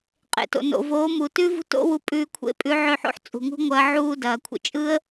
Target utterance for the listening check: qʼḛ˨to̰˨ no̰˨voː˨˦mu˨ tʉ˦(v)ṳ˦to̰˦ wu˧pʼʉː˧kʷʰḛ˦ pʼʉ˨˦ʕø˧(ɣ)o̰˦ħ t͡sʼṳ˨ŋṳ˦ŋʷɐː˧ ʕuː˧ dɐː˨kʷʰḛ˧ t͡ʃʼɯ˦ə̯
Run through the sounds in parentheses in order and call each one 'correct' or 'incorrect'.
correct, incorrect

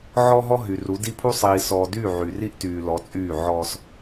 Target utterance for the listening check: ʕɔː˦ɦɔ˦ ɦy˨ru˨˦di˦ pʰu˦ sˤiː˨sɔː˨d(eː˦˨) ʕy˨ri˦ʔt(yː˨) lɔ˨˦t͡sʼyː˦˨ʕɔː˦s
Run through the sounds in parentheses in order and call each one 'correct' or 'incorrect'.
incorrect, correct

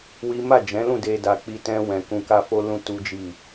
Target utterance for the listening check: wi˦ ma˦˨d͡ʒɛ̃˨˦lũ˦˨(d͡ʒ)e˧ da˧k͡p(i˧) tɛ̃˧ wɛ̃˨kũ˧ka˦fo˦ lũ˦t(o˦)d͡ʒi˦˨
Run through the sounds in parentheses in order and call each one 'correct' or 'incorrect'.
incorrect, correct, incorrect

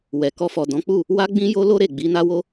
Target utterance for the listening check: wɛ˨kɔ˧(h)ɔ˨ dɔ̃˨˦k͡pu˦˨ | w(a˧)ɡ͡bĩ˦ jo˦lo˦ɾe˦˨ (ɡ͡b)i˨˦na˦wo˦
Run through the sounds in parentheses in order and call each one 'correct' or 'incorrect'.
incorrect, incorrect, correct

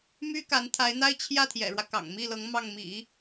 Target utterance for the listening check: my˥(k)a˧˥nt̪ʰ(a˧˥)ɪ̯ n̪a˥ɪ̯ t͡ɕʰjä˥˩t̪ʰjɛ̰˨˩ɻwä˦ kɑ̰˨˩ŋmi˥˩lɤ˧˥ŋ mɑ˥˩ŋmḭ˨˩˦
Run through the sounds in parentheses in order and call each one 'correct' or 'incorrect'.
correct, correct

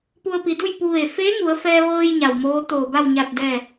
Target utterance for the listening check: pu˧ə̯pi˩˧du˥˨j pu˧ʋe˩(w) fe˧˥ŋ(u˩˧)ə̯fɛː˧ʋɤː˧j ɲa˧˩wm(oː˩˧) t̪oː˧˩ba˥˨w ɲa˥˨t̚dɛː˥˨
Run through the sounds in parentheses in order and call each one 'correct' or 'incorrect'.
incorrect, correct, incorrect

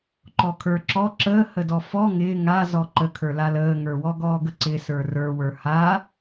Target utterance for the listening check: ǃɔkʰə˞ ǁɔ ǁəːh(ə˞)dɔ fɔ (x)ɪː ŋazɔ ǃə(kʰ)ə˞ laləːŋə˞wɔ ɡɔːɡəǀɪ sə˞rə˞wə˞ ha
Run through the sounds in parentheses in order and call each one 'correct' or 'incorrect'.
incorrect, incorrect, correct

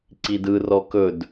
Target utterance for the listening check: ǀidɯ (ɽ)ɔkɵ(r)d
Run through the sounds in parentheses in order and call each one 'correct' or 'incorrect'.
incorrect, incorrect

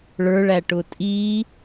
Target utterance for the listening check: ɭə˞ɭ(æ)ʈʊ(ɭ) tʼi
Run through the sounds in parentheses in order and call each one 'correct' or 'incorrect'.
correct, incorrect

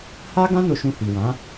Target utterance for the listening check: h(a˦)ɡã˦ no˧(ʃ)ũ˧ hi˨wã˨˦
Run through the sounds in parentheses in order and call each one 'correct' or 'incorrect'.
correct, correct

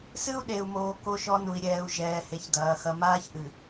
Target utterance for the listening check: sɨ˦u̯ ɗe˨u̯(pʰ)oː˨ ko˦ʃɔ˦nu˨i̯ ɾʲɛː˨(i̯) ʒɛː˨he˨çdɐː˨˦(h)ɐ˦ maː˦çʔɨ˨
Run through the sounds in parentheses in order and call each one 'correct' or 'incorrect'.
incorrect, incorrect, incorrect

